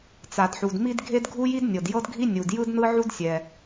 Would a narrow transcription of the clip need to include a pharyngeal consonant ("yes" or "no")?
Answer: yes